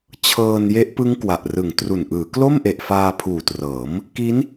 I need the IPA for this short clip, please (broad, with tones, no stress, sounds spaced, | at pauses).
t͡ɕʰ ɤː˧ n j e˦˥ ʔ p ɯ˦˥ ŋ k w a˨˩ ʔ r ɯ˨˩ ŋ t r u˨˩ n ʔ ɯː˩˦ k l o˥˩ m ʔ e˨˩ ʔ f aː˧ pʰ uː˨˩ t r ɤː˩˦ m | k i˦˥ n